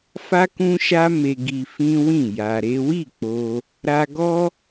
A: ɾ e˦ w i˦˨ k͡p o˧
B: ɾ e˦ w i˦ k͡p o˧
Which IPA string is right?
A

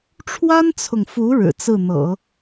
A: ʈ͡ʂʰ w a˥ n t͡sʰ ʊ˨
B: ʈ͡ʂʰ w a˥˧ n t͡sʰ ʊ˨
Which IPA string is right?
A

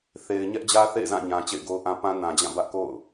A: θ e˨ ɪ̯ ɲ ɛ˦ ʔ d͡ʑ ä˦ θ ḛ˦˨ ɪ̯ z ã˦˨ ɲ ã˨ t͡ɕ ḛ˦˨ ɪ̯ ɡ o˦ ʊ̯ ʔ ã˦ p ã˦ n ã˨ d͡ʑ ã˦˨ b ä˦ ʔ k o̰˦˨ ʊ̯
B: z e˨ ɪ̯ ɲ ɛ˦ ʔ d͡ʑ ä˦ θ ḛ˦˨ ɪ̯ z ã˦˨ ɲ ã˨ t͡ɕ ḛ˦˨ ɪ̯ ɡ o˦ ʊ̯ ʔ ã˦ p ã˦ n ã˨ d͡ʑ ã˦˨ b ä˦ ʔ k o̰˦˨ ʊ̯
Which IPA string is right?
A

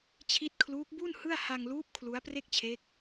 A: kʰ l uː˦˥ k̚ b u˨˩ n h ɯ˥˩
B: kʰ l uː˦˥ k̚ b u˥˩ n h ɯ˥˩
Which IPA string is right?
B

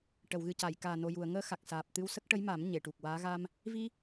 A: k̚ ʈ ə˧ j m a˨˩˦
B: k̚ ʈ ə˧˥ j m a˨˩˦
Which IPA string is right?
B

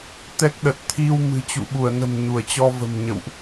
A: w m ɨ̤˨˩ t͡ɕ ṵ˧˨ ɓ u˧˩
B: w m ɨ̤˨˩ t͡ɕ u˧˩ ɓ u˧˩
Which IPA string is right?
A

